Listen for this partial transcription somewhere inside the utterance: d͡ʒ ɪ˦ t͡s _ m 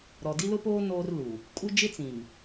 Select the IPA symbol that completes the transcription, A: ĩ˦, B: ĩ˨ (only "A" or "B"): B